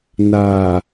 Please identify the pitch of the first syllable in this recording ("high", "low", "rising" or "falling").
low